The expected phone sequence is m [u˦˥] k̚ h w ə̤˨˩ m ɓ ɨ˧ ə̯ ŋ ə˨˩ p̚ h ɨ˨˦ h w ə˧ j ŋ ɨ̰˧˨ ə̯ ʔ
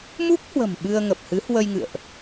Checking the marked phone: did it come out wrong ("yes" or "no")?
no